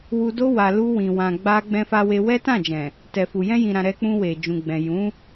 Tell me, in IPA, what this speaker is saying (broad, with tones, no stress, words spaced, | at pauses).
wu˧do˦ wa˧ lu˧wĩ˨ wã˨ɡ͡ba˧ ɡ͡bɛ̃˧fa˧we˧ wɛ˦tã˦˨d͡ʒɛ̃˨ | tɛ˨fu˨ jɛ̃˧jĩ˨ɾã˨ ɾɛ˧k͡pũ˧we˨ d͡ʒũ˨ɡ͡bɛ̃˨jũ˨˦